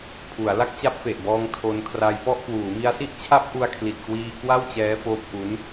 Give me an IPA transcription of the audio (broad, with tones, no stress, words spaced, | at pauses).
pʰu˩˦a̯ la˥˩k̚t͡ɕa˦˥p̚fe˨˩ʔbɔː˧ŋ tʰo˧nkʰra˧jpɔ˥˩ʔ kwuː˩˦mi˧a̯si˥˩ʔ t͡ɕʰa˦˥p̚ ʔu˧a̯kʰli˨˩t̚kwiː˧ kwa˥˩wt͡ɕɛː˦˥foː˦˥p̚ʔu˦˥n